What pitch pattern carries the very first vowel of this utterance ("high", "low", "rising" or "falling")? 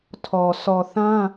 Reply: low